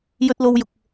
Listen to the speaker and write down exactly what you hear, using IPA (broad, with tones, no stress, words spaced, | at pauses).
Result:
jɵ˧t̚lo˧wjʊ˨k̚